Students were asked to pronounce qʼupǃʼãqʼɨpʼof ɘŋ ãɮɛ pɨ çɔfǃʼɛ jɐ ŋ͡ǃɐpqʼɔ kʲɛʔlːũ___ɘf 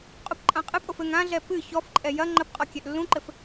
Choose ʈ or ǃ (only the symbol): ǃ